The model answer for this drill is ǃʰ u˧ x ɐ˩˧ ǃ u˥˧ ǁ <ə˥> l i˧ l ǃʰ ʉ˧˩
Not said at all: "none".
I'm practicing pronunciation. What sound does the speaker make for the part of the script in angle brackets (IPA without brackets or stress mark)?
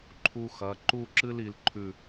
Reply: ɨ˥